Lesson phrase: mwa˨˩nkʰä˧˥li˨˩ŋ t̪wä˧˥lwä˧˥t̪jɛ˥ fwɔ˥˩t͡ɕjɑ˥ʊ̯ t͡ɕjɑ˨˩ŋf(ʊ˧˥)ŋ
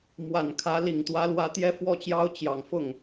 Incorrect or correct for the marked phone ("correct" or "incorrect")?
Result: incorrect